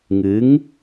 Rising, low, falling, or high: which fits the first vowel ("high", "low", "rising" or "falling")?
rising